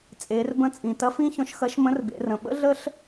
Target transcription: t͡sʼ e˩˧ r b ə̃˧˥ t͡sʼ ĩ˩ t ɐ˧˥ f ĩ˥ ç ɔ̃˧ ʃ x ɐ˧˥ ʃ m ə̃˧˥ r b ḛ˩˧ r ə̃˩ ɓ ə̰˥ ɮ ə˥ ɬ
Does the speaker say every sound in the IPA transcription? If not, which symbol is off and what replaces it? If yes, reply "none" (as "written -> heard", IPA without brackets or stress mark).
none